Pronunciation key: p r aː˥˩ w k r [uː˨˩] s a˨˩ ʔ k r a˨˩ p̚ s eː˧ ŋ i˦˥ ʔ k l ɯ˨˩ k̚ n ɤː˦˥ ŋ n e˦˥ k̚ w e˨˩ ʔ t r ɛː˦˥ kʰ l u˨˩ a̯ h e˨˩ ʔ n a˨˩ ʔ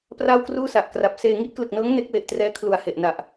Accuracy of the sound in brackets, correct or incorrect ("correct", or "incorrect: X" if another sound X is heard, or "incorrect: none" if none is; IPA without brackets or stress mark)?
incorrect: uː˥˩